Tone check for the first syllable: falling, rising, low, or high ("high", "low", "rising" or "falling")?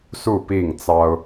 falling